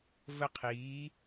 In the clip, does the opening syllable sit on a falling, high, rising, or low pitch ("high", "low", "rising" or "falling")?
falling